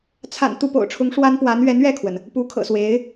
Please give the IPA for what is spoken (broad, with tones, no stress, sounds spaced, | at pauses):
t͡sʰ a̰˨˩ n t̪ u˥˩ p o̰˨˩ ʊ̯ ʈ͡ʂʰ ʊ˧˥ ŋ ʂ w a˥ n p w a˧˥ n ɥ ɛ˧˥ n ɥ ɛ˥˩ kʰ w ə˩ n | p u˧˥ kʰ ɤ̰˨˩ s w e˧˥ ɪ̯